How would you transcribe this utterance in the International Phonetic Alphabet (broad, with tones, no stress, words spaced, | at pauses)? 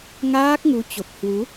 ŋaː˦˥k̚ŋu˨˦t͡ɕo˨˩p̚ hwu˨˦